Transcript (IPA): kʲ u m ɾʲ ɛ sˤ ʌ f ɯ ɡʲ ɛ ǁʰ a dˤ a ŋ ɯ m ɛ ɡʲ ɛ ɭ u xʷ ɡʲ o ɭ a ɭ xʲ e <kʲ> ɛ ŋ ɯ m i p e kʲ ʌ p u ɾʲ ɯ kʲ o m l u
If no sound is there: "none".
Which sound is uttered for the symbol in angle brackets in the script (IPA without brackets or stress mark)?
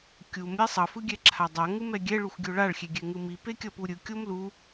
ɡʲ